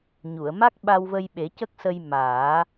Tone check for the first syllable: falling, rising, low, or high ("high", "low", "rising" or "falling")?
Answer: low